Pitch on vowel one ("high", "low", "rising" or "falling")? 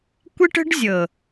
high